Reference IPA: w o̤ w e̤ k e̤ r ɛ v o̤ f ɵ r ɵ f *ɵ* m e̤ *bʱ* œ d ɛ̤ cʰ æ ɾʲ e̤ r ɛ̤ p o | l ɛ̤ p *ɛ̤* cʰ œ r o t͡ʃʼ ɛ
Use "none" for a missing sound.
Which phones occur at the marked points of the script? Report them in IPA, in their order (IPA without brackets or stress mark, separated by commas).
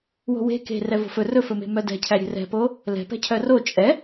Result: ɵ, m, ɛ̤